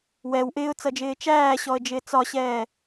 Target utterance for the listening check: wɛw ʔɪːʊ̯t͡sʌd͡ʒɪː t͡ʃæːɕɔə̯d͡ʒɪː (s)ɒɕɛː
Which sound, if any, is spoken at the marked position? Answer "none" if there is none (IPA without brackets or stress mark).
t͡s